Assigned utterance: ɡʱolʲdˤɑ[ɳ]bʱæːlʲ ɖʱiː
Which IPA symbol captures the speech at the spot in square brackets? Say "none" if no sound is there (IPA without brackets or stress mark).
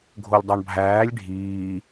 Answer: ɳ